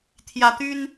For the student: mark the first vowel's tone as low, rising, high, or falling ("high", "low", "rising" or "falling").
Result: rising